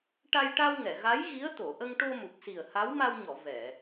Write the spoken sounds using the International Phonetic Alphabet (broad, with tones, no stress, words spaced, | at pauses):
ʈa˧jʈa˧wŋɛ˨˩˨ɣa˧˥j ɣi˧˥ə̯t̪o˨˩˨ ʔə˧ŋʈo˧mu˨˩k̚si˨˩ə̯ ha˧˥wma˧wɲɔ˨˩˨ vɛ˨˩˨